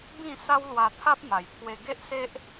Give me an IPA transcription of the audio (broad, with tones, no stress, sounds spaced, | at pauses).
b ĩ˥˧ s a˦ w l w a˧ t̪ʰ a˦ p̚ m a˨˩ j t̪ʰ w e˧ ɡ e˦ ʔ s e˦ ʔ